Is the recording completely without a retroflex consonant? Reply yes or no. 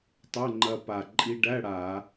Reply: no